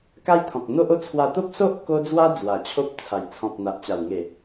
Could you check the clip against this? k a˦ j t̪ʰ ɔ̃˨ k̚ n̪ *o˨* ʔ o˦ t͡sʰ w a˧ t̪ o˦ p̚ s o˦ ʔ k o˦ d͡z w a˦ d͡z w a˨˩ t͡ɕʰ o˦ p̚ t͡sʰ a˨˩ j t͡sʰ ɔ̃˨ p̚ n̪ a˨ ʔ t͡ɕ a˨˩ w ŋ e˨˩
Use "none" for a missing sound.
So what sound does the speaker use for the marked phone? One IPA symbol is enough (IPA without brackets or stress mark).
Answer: o˦